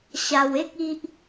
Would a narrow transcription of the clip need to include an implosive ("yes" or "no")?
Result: no